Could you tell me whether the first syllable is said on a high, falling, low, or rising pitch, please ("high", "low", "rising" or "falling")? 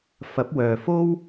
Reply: rising